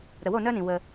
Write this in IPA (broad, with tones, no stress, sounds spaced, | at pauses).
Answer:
ɾ ə˧ w o˥˧ n œ˥ n ĩ˧ w ə˧